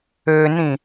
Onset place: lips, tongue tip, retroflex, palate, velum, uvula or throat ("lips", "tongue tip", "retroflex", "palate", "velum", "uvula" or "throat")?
tongue tip